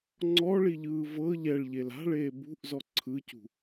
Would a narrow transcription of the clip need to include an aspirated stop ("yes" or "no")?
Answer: yes